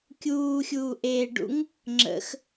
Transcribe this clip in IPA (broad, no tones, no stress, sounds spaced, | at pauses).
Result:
kʲ uː xʲ uː ʔ eː ɖ ṵ ŋ | ŋ͡ǁ ə̰ x